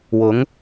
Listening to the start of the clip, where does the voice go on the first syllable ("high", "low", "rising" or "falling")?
rising